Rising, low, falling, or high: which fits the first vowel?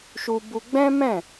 high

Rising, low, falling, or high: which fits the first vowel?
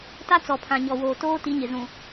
high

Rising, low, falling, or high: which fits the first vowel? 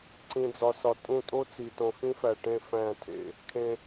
low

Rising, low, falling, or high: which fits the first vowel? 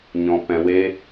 low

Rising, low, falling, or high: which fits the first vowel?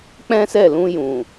high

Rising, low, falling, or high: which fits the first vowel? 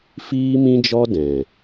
high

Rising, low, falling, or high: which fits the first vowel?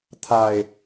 low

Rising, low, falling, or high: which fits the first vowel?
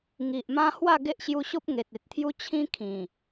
low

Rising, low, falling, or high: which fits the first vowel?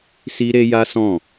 high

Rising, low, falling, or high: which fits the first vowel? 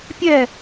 falling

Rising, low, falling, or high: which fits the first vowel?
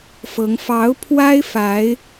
rising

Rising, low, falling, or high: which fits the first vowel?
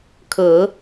low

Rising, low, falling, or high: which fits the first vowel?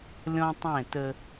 high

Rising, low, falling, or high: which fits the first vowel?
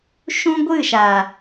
high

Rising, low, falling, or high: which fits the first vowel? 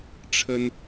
high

